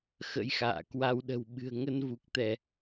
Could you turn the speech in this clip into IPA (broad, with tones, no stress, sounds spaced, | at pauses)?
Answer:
x ə̰˧˥ j x a̰ː˧˨ k w a˧ w ɗ ə̤˨˩ w ɓ ɨ̤˨˩ ə̯ ŋ ə˧ n v u˨˩ k̚ t̪ ɛ˧˩˨